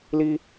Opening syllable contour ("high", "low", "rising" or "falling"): high